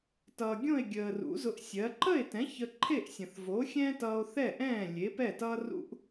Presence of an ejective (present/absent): absent